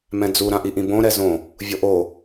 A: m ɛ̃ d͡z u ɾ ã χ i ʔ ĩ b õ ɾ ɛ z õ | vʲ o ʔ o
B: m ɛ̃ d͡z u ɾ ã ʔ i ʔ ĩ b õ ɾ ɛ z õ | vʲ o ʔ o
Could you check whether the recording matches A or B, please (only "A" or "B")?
B